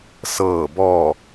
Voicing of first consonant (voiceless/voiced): voiceless